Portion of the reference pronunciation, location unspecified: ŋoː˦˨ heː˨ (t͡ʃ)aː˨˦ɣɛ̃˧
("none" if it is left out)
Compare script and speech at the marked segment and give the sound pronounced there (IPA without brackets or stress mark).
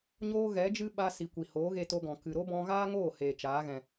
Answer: t͡ʃ